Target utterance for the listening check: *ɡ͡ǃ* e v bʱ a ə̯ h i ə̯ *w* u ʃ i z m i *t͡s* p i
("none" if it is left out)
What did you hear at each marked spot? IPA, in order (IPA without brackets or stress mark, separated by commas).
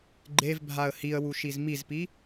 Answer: ɡ͡ǃ, w, z